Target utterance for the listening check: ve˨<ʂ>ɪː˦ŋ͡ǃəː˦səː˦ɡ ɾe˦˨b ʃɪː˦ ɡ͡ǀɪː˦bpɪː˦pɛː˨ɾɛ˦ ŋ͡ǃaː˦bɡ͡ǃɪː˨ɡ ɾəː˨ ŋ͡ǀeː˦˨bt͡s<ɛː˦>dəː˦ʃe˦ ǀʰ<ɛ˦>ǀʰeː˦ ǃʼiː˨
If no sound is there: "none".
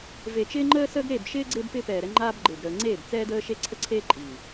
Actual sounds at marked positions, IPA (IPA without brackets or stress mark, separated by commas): t͡ʃ, ɛː˦, ə˦